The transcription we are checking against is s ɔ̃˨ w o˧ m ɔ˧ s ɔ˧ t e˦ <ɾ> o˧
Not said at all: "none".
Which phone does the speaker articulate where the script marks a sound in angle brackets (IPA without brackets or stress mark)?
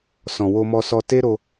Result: ɾ